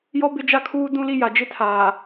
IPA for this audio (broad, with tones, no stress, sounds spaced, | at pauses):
j ɔ˦ b ɪ˦ d͡ʒ a˦ kʰ uː˦ d ũ˦ l i˦ j a˨ d͡ʒ ɪ˦ tʰ aː˨